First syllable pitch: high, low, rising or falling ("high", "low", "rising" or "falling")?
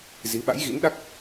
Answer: rising